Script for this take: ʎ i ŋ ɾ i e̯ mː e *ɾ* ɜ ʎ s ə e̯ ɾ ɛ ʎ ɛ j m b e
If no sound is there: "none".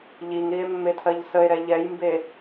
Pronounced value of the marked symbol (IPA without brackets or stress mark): tʰ